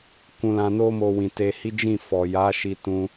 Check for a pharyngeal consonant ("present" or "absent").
absent